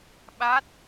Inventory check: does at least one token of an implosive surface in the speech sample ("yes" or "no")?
yes